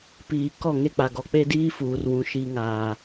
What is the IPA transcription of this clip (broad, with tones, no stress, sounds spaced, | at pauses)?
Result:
p iː˨ k ɔ˦˨ ŋ e˦ k͡p a˨ ɡ ɔ˨ k͡p e˦ d iː˦ f uː˨ r w ũ˨ ʃ i˨ ŋ aː˨